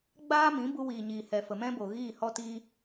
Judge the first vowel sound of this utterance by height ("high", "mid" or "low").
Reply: low